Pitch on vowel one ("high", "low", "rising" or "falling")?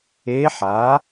rising